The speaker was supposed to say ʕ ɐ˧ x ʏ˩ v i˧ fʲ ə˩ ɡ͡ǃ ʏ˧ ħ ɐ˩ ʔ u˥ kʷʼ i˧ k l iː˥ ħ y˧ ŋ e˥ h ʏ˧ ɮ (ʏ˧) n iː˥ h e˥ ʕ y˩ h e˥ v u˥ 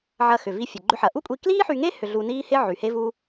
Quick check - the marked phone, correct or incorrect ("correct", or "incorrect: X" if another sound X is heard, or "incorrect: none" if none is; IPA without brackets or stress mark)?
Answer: incorrect: u˧